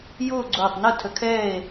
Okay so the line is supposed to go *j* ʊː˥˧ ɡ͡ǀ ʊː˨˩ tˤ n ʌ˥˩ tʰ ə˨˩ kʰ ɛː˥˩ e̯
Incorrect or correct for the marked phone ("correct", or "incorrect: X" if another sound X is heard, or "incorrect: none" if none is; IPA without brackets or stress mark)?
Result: correct